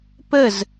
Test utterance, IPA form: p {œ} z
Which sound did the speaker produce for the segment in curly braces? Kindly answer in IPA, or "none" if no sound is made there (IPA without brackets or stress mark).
ə